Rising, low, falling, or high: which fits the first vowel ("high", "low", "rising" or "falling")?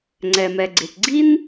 low